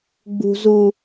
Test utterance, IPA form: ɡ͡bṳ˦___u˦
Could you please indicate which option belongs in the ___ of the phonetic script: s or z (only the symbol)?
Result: z